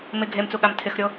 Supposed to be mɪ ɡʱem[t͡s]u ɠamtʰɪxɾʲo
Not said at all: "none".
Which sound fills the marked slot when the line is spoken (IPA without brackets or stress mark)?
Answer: t͡s